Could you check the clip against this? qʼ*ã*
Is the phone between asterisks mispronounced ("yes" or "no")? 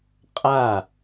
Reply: yes